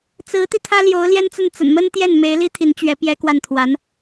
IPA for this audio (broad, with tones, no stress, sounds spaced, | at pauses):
t͡s ɹ̩˧˥ t̪ i˧ t̪ʰ ä˥ l j o˧˥ ʊ̯ l j ɛ˥ n t͡s ə˥˩ n t͡s ə̰˨˩ n m ə˥ n t̪ j ɛ˥˩ n m e˧˥ ɪ̯ l i˥ t̪ʰ i˧˥ n t͡ɕ ɥ ɛ˧˥ p j ɛ˥ k w a˥˩ n t̪ʰ w a˧˥ n